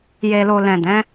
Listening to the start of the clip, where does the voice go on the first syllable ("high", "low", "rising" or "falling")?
low